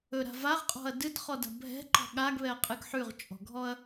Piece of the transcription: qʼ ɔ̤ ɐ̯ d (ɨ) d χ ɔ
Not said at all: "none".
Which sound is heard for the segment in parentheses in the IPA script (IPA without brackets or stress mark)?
ɨ